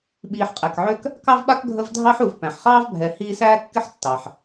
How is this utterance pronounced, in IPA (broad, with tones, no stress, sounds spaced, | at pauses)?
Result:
ɓ iː˨ ħ qʼ æ˩ k ʕ ø˦ k | k ɑ˥ v ɓ a˥ k ɡʱ ə˦ v dʱ ɑ˥ ħ u˨ v p æ̃˩ ħ χ ɑː˥ v bʱ ɛ˨ h iː˦ s æː˥ kː ɪ˥ ħ tː ɑ˩ ħ